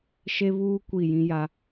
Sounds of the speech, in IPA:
ʃ e˦ β uː˦ kʷ i˦˨ j ĩ˦ j a˦

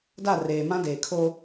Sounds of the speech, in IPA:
d a˦˨ r eː˨ m ã˦ d eː˨ kʰ oː˦

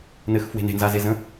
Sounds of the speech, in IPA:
n ɘ x f w e̤ n e̤ n z a z e z ə̃

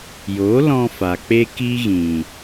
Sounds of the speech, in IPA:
j o˨˦ l ɔ̃˧ f a˨ k͡p e˦ k i˦ ɣ ĩ˨

